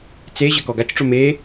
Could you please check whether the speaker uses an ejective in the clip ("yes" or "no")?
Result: no